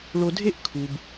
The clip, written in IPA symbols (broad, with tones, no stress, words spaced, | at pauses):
ɭo˨dʱe˦ʔ kʰu˩b